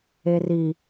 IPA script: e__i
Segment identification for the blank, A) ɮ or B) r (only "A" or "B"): B